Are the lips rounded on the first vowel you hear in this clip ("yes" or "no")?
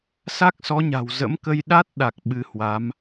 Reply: no